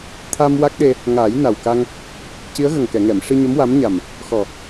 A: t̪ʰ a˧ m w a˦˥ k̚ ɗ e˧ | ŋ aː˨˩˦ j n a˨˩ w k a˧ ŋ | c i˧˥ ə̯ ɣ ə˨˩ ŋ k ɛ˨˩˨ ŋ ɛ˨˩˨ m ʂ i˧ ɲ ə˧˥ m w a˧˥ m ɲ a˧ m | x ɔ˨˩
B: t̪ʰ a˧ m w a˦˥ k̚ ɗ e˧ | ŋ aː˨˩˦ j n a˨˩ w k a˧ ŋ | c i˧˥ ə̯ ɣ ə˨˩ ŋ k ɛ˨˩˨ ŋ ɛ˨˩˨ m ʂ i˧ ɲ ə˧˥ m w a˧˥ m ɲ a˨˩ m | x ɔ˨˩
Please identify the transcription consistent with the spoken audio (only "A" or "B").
B